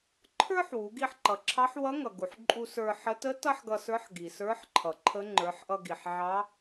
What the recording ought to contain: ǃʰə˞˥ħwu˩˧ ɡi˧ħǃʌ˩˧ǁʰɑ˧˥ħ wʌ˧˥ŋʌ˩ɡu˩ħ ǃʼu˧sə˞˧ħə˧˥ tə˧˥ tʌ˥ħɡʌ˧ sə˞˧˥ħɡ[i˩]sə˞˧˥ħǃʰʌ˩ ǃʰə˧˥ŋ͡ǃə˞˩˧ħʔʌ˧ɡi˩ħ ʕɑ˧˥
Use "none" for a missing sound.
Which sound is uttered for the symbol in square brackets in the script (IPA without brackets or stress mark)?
i˩